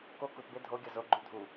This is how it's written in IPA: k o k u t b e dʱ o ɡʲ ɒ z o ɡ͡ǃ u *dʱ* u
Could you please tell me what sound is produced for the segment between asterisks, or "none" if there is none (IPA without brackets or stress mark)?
dʱ